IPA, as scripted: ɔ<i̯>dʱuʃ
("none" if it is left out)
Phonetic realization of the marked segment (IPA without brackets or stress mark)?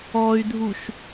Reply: y̯